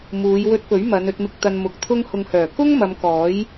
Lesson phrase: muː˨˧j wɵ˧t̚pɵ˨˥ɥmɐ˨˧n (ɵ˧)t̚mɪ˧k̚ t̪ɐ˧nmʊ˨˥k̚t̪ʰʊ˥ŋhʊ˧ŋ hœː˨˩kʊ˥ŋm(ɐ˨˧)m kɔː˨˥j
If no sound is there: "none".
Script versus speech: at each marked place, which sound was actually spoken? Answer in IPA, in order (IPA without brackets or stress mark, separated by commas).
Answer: ɵ˧, ɐ˨˧